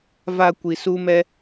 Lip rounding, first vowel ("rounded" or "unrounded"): unrounded